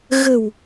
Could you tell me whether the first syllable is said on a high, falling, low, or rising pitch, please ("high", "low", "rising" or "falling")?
low